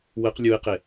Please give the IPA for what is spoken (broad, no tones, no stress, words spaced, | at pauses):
wəq lʲuɪ̯qe